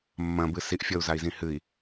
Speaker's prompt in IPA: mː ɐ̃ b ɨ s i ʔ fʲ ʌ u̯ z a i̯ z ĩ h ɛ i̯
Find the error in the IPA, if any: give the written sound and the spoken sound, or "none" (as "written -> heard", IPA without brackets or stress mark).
ɛ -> ɨ